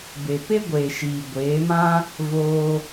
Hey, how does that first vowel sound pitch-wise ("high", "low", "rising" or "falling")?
low